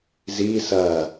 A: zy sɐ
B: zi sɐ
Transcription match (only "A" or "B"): B